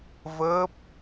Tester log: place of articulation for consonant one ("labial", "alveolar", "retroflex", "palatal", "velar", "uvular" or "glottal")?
labial